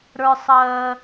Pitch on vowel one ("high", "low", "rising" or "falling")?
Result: high